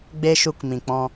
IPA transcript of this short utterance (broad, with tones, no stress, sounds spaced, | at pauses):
ɡ͡b e˦ ʃ u˧ k m ĩ˨ k͡p ɔ̃˧